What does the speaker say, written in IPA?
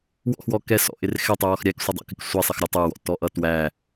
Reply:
w ɔ̰ x w ɔ k ɛ s ɔ̰ ʔ ɪ r x ɛ tˤ ɪ w ɔ x ɾʲ æ k sʷ ə dˤ ɑ̰ k ɪ k sʷ ɛ sˤ ɪ x ɾʲ ɔ tˤ ə˞ w ɔ̰ t ɔ ʔ ʌ t w æ

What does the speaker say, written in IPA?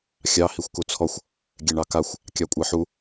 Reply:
xʲ ɑ h i xʷ k u t͡sʰ ɔ xʷ | ɡʲ ɛ ɳ ɑ k a xʷ | kʲ ɑ kʷʼ a ħ u

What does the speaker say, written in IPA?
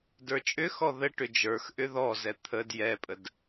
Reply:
d ə˞ t͡ʃʼ ʏ x ɔ ð ə ʈ ʏ d͡ʒ ə˞ x ʔ ʏ ð ɔ z ɛ t̪ʰ ə d j ɛ pʼ ə d

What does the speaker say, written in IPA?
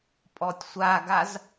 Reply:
pʼ ɔ tʲ sʷ a ɡ a z

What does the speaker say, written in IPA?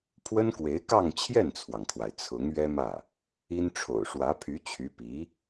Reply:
pʰ w ə˥ n k w e˧˥ ɪ̯ k ɑ˥˧ ŋ t͡ɕʰ j ɛ˥˩ n t͡sʰ w ɑ˩ ŋ kʰ w a˩ ɪ̯ t͡sʰ ʊ˧˥ ŋ ɥ ɛ˥ m ä˥˩ | i˥ n ʈ͡ʂʰ o̰˨˩ ʊ̯ ʂ w ä˧˥ pʰ y˧˥ t͡ɕʰ y˧˥ p i˧˥

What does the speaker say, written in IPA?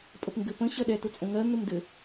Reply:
pʼ ə p ŋ ɡ ɘ p ə̃ ɕ ɜ ɗ ɛ t ʊ t͡sʼ õ ŋ ɜ n̪ ɘ m d ɘ

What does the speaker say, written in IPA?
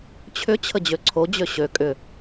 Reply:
t͡ɕʰ ʏ t͡ɕʰ ə d͡ʑ ø ǀʰ o d͡ʑ ø ɕ ø kʼ ʏ

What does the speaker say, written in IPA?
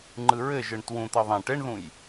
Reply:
ŋ͡ǃ ɯ ɹ ɘ ʒ ɯ ɳ t w ũ t̪ ʌ ðˤ ẽ ʈ e ɳ ð ũ j

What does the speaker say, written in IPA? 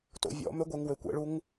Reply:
t o̰ vʲ ɔ̰ m ø ɡʷ e ŋ w ø kʷ ɛ̰ ɭ u ŋ

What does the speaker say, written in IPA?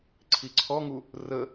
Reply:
ǀʰ i ǀʰ ɔ ŋ u | r ə

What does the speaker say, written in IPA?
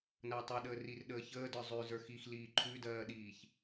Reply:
n ɐː tˤ ʉ ɗ əː r i r ɗ əː ç əː d ə˞ zˤ ʉ z ə˞ x i x l iː ǃʰ ʉ d ɜː ɗ iː ç

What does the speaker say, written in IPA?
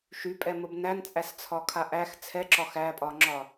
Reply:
ʃ y pʼ ɛ m ə b n æ n t͡sʼ æ s t͡sʰ ɒ kʰ a ʔ æ x t͡sʰ ɛ ǁ ɒ x æ pʼ ɒ ŋ͡ǁ ɒ

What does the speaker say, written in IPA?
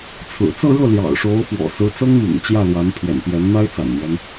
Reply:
t͡sʰ ɹ̩˨˩ t͡s ɤ˥˧ ɻ ɤ˥˩ l j ɑ̰˨˩ ʊ̯ ʂ o˧˥ ʊ̯ f w ɔ̰˨˩ s ɹ̩˧˥ t͡s ɤ˥ ŋ m ḭ˨˩ ŋ t͡ɕ j ä˥˩ l w a˧˥ n pʰ ɥ ɛ̰˨˩ n p j ɛ˧˥ n n̪ a˥ ɪ̯ t͡s a̰˨˩ n n̪ ɥ ɛ˦ n

